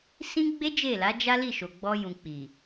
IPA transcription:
s ĩ˦ ɡ͡b e˦ d͡ʒ e˦˨ l a˨˦ d͡ʒ a˦ l i˦˨ ʃ o˨ ɡ͡b ɔ˧ j ũ˨ k͡p i˨

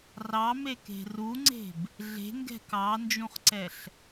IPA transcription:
r ɑ m e k e̤ r u ŋ͡ǀ e̤ b | ɮ e̤ ŋ ɡ ɛ̤ k ɑ n d͡ʒ ũ χ ǀ ɛ ɬ

